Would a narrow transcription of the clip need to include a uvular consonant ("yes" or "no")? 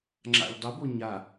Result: no